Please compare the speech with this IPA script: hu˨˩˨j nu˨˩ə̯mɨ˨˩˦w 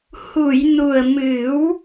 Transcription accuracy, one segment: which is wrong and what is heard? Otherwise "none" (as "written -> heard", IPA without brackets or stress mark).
none